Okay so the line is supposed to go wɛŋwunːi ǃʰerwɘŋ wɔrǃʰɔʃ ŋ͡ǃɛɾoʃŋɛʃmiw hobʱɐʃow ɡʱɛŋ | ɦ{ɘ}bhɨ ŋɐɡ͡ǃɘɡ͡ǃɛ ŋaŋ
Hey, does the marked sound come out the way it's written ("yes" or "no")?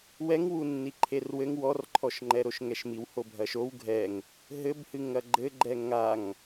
yes